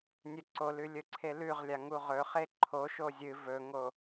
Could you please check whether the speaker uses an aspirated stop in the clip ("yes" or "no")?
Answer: yes